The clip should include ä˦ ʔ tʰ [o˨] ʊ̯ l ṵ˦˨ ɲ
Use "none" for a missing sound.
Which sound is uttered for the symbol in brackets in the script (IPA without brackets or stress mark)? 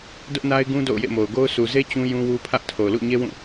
o˨